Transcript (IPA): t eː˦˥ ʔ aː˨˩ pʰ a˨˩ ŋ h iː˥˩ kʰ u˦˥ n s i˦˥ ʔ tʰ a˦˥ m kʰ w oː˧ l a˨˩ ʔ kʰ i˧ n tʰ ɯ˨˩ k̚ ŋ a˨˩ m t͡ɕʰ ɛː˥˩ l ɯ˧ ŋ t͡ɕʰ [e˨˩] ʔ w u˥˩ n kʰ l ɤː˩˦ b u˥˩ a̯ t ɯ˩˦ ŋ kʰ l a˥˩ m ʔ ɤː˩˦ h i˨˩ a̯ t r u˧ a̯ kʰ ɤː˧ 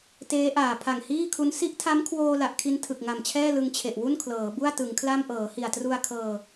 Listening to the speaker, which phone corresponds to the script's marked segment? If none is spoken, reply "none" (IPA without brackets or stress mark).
e˨˩